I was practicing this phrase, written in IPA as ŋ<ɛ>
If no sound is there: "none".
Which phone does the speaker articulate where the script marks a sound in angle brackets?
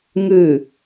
ɨ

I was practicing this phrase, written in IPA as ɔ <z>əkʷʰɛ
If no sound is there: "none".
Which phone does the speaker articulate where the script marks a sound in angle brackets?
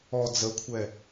d͡z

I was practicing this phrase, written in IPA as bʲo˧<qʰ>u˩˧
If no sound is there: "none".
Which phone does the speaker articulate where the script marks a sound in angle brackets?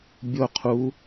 qʰ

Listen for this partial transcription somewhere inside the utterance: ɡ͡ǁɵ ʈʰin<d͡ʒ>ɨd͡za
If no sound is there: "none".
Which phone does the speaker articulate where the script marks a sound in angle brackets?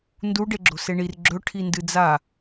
d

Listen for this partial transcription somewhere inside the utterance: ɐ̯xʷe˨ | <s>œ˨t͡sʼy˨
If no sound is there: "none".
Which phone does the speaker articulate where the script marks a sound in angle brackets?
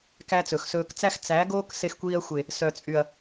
s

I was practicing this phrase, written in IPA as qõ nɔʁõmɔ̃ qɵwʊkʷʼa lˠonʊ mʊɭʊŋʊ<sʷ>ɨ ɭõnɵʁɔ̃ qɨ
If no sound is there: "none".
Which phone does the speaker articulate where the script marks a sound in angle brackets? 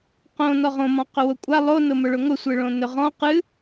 sʷ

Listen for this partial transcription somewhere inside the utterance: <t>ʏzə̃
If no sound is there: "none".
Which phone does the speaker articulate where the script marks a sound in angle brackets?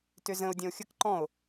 t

